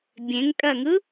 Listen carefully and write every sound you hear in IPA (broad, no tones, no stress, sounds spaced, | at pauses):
bʲ ẽ ŋ kʼ ɜ ŋ ɯ